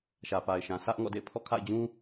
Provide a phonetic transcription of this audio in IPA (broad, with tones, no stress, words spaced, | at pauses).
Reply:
ʃä˨pa˨ɪ̯ ʃã˨sä˦ʔ ŋɔ̰˦˨dḛ˦˨ɪ̯ pʰɔ̰˦˨kʰa̰˦˨ɪ̯d͡ʑũ˦